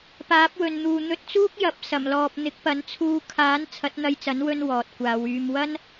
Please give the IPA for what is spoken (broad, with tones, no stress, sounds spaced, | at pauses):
p aː˨˥ p̚ w ɵ˨ n n̪ uː˨ n̪ ɵ˧ t̚ t͡s uː˥ k̚ j ɐ˨˥ p̚ s ɐ˨˩ m l ɔː˨ p̚ n̪ ɪ˨˥ k̚ p ɐ˨˥ n t͡sʰ uː˧ kʰ aː˨˥ n t͡sʰ ɐ˨˥ t̚ n̪ ɐ˧ j t͡s ɐ˨˥ n w ɵ˧ n w ɔː˨ t̚ kʷ aː˨˧ w yː˧ m w ɐ˥ n